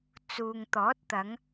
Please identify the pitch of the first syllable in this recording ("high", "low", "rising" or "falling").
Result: low